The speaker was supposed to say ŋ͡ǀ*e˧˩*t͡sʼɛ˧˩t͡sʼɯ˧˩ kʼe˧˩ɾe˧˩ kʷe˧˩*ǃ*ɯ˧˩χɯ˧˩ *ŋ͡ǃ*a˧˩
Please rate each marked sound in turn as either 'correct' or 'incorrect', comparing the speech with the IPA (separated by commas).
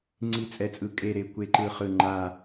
incorrect, correct, correct